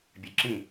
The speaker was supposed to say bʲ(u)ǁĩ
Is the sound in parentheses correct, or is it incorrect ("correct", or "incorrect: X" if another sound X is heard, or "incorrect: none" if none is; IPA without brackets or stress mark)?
incorrect: ø